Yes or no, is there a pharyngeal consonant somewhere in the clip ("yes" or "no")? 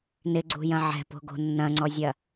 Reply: yes